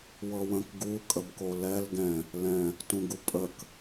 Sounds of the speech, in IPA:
wɤwə̃k ɡu kʼəbkolɛl ɡɛ̃ | lɛ̃ | tũɡupʼək

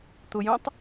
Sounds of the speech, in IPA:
t̪ʊjũtˤ

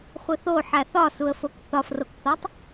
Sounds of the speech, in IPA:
χʷeθo ħæθɒsuə̯fok θɒfrokθɒtˤ

